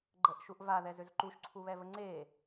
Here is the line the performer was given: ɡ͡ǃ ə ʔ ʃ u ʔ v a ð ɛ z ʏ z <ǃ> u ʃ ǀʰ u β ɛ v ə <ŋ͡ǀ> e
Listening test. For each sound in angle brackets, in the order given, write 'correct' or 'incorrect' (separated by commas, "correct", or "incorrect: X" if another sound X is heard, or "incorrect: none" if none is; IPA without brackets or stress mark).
correct, correct